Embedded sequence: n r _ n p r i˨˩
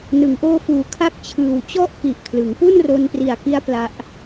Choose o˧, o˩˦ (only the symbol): o˧